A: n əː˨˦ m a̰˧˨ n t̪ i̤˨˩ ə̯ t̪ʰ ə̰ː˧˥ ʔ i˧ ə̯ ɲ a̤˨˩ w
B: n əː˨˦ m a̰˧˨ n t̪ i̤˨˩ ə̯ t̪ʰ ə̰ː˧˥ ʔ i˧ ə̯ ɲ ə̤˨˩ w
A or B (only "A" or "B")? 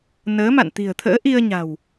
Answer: A